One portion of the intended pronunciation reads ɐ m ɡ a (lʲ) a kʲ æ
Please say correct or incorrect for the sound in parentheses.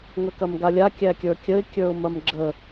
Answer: correct